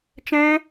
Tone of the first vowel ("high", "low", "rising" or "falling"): high